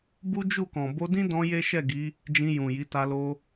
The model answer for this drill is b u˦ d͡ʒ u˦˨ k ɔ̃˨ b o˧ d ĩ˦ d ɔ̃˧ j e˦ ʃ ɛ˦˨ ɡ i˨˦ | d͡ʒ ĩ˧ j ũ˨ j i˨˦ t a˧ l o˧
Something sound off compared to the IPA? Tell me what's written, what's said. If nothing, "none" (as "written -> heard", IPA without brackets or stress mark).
none